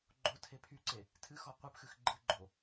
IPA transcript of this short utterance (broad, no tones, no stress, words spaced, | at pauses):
ɡ͡ǃotʰe pʰyǀe | tʰɨxɔ qʷɨpxɨx ɡ͡ǃɨɡ͡ǃo